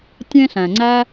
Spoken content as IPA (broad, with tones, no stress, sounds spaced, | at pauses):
tʲ ẽ˦ ɬ æ̃˨ ŋ͡ǀ æ˧